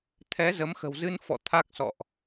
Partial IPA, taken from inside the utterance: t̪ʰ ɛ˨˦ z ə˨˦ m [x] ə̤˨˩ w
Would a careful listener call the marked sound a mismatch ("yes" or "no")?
no